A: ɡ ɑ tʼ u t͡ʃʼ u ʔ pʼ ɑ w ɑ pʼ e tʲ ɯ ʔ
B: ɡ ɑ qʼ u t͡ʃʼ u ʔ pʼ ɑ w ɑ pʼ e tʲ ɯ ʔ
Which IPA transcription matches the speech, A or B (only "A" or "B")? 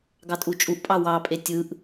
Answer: A